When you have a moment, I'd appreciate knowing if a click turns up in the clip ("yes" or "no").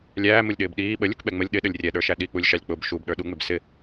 no